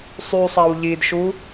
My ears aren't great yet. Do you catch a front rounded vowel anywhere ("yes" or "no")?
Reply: yes